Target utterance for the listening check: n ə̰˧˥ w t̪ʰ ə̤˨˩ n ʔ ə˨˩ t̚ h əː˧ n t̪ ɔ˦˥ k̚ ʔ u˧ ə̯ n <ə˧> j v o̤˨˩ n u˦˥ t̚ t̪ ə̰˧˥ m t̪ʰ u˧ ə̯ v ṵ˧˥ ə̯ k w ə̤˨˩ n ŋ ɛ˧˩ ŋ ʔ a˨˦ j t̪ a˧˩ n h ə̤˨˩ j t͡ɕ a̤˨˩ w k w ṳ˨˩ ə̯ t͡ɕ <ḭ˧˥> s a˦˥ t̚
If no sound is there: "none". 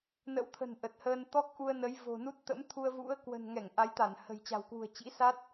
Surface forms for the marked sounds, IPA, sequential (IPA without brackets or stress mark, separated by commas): ə˨˦, ḭ˧˥